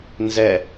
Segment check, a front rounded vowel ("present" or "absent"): absent